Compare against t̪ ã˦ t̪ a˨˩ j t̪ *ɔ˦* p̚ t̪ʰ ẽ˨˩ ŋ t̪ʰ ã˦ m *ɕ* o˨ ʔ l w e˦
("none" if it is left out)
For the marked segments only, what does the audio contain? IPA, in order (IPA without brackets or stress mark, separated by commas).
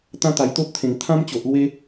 o˦, t͡ɕ